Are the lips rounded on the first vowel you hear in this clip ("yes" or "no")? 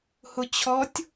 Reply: yes